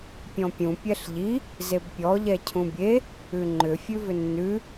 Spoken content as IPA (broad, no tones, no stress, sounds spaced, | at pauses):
pʲ ɔ̃ pʲ ũ pʲ ɛ ɬ ʎ i | z e b pʲ ɔ ʎ ɛ cʰ ũ bʲ e | ʉ ŋ͡ǃ ʏ fʲ ʉ v ʏ nː ʉ